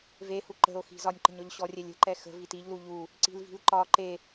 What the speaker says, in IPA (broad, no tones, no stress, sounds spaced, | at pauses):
v e h u ǃ ə̤ o̯ x i̤ z ɒ nʲ ǃ ə̤ ɲ ɔ ʎ ɕ ɔ rʲ ɛ lʲ ə̤ ǃ ɛ x ə̤ v i t i ʎ l u ʎ u | ǀ i̤ l v i̤ l ǃ ɒ ǃ e